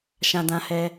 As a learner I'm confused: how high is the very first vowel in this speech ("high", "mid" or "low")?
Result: low